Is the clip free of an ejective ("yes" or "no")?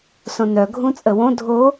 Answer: no